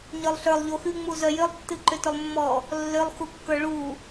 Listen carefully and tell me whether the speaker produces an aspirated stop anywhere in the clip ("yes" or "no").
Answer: no